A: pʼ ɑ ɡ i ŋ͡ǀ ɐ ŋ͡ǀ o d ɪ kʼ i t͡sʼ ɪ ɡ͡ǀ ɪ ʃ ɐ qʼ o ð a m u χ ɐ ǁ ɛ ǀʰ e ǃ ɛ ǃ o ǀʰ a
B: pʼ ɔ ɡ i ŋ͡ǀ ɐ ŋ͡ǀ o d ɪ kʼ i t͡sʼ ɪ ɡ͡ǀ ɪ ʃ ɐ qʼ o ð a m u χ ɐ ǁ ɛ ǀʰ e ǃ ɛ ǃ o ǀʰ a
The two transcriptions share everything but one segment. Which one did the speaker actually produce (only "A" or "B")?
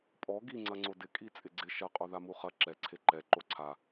B